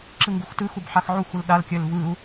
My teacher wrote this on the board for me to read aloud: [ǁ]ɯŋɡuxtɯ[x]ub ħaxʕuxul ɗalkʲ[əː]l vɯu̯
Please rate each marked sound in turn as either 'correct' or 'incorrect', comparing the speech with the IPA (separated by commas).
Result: correct, correct, correct